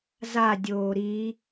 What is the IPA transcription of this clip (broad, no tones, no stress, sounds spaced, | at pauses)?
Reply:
z a dʲ oː ɾ i